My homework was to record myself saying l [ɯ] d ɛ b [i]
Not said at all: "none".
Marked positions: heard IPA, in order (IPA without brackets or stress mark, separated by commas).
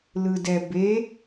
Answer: ɯ, e